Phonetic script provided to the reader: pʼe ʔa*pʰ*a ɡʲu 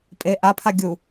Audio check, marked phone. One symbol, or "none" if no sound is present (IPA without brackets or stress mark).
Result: pʰ